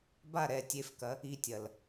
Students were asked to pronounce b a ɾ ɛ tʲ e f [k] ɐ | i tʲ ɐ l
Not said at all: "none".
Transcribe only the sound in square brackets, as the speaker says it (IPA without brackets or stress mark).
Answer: k